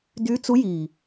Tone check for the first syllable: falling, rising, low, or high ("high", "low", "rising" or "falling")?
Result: rising